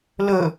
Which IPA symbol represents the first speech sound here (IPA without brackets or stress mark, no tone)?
l